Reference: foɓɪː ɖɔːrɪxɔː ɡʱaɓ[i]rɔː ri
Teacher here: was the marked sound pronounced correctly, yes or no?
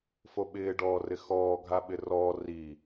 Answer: no